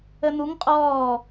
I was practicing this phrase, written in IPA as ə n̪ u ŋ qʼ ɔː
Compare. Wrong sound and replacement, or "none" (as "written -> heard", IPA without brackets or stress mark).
none